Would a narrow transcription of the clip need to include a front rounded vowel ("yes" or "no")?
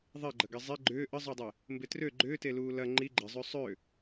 yes